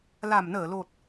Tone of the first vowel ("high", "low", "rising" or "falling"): low